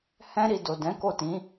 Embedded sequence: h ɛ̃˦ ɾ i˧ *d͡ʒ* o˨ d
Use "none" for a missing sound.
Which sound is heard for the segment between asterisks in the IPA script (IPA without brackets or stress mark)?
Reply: d